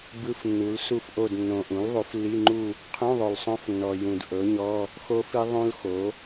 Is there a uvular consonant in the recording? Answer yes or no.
yes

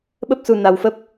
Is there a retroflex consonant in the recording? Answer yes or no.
no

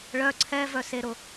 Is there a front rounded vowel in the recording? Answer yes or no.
yes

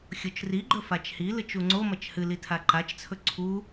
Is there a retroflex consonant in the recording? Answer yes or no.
no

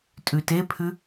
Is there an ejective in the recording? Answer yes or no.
yes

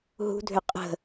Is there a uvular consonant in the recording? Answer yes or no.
yes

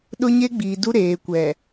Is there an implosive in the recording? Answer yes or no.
yes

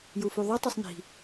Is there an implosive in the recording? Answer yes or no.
no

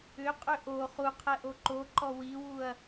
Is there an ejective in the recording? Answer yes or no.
yes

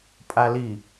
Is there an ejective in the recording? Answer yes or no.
yes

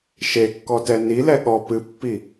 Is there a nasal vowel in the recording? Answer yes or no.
no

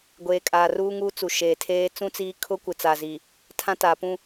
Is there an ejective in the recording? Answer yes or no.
yes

